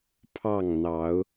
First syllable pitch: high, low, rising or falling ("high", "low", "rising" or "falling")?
falling